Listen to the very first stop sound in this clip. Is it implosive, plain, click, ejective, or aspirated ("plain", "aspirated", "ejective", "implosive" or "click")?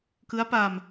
plain